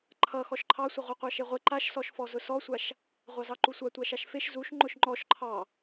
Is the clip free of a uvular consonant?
no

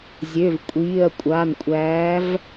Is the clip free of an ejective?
no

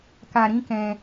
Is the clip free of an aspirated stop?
yes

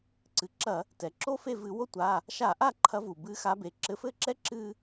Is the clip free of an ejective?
yes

